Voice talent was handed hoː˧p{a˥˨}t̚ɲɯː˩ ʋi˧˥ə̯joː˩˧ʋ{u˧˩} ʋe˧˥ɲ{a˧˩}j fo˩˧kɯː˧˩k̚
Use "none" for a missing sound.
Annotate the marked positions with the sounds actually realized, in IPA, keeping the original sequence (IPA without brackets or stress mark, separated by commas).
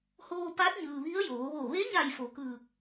a˧˥, o˧˩, a˧˩